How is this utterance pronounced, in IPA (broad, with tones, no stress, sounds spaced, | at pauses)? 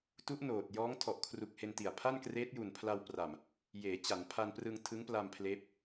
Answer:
t u˦˥ ʔ n oː˨˩ t̚ j ɔː˦˥ ŋ tʰ ɔ˨˩ ʔ kʰ r u˨˩ k̚ h e˧ n t i˨˩ a̯ pʰ a˥˩ n k r eː˦˥ t̚ j u˨˩ n pʰ l a˧ w p r a˨˩ m | j eː˩˦ t͡ɕ a˩˦ n pʰ a˧ n p r ɯ˧ ŋ tʰ ɯ˦˥ ŋ p l a˧ m pʰ l eː˦˥ p̚